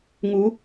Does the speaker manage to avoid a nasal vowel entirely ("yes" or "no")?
yes